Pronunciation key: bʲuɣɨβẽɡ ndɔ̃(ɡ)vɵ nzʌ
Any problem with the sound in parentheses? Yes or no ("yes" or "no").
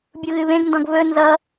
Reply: no